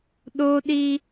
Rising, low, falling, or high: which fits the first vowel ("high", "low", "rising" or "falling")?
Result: high